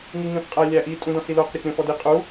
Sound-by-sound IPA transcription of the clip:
ŋ i ŋ ĩ χ qʼ æ lʲ æ ʔ i tʼ ũ d ɔ̃ s i l o q ɾʲ o k ɾʲ õ f ɔ d i qʼ u

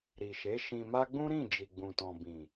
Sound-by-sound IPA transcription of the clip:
ɾ i˨ ʃ e˨˦ ʃ ĩ˧ m a˦ ɡ͡b ũ˦ ɾ ĩ˦˨ d͡ʒ i˨ ɡ͡b ũ˨ t ɔ̃˨ b ĩ˨

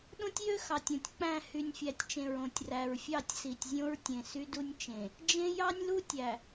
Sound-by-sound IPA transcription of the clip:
ɗ õ˦ tʲ j ø˦ x ɑ˨ tʲ õ˨ tʲ k͡p æ̃˦˨ h y˨ nʲ fʲ æ˨ tʲ t͡ʃ ẽ˨ ɹ õ˨ tʲ r æ˨ ɹ fʲ ɑ˦˨ tʲ s i˨ tʲ zʲ õ˦ ɹ tʲ ẽ˨ s y˦ d u˦ nʲ t͡ʃ ẽ˨ | d͡ʒ ẽ˦ j ɑ˦ nʲ l u˦ tʲ æ˨

